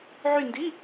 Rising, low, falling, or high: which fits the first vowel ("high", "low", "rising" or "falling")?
falling